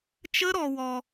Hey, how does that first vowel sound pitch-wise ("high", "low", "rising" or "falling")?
high